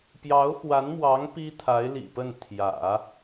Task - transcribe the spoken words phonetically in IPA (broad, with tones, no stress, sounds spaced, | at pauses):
p j ɑ˧˥ ʊ̯ x w a˧˥ n m w ɑ˧˥ ŋ p i˥ t̪ʰ a˧˥ ɪ̯ l ḭ˨˩ p ə˥˩ n t̪ʰ j ä̰˨˩˦